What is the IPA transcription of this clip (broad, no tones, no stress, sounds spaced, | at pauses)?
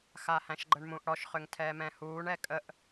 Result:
x a h æ̃ ʃ ɡ͡ǃ ə ɳ m ũ ʔ ɽ ɔ ʃ χ ʏ ŋ tʰ ɛː m ɛ̃ h uː ɳ ɛ kʼ ə ʔ